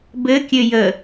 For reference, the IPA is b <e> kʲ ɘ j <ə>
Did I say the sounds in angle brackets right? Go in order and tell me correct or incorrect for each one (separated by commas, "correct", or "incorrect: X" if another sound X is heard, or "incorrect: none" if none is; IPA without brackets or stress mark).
incorrect: ɘ, correct